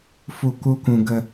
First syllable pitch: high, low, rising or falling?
low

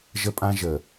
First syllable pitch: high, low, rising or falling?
high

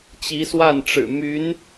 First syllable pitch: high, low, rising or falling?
rising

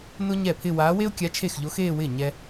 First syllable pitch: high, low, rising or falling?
high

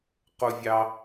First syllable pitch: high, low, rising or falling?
high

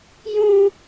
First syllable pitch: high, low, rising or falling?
high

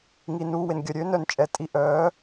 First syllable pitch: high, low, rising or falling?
low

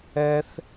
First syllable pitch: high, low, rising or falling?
high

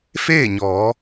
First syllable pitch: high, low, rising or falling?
falling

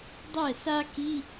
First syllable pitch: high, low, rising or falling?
falling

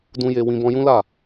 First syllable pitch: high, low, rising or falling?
high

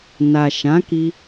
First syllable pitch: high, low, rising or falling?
low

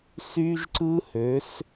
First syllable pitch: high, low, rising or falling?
high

